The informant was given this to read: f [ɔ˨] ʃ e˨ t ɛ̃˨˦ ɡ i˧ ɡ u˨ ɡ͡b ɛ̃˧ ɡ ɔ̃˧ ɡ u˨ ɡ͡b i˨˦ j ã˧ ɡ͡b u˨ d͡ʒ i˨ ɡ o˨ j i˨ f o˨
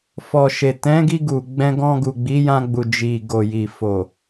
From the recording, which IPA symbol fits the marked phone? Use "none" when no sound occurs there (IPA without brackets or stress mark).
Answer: ɔ˨